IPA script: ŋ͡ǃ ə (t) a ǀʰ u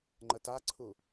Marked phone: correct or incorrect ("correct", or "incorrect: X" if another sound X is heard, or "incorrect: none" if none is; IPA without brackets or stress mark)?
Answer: correct